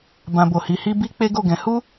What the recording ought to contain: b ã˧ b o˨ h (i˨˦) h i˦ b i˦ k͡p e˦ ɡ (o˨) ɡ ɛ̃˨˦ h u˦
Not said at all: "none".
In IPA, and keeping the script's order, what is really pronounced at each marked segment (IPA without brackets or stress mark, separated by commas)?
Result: i˨˦, o˦˨